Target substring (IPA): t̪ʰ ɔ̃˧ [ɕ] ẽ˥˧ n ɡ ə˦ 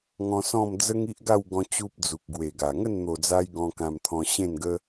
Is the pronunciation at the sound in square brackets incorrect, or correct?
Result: correct